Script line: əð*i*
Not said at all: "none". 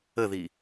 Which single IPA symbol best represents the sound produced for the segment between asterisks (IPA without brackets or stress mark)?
i